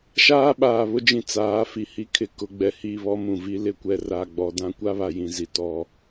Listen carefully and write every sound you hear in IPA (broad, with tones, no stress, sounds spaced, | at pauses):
ʃ aː˦ ɓ aː˨ β ʊ˦ d͡ʒ ĩ˨ t͡s aː˨˦ f i˨ h i˦ kʰ ɪ˨ k ʊ˨ ɡ͡b ɛ˨ h i˦˨ β ɔ˦ m ũ˨ v i˦ l ɪ˦ kʷ ɛ˨ r a˨ ɡ͡b ɔ˨ d ã˦ kʷ a˦ β a˨ j ĩ˨ z i˨ t ɔ˨